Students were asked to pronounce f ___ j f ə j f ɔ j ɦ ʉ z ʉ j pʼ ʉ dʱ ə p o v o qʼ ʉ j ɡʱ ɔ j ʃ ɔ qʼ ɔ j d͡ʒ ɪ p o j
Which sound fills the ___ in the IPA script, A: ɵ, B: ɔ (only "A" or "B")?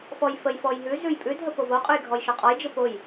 B